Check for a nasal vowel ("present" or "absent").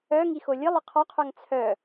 absent